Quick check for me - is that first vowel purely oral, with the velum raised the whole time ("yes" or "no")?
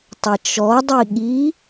yes